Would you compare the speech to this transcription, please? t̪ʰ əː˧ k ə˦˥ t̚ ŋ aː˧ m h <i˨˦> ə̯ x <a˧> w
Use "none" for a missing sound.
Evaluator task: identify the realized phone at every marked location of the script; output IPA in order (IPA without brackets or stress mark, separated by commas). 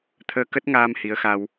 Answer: i˨˦, a˧